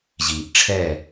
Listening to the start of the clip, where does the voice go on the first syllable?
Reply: low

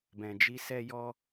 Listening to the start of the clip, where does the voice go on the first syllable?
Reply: low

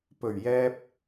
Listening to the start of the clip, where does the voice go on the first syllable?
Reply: low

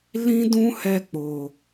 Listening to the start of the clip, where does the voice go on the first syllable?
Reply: high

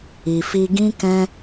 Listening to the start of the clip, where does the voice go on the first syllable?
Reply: low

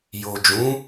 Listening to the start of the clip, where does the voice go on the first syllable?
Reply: low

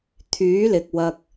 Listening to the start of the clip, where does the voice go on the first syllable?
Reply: rising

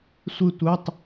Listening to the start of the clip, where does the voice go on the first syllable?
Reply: falling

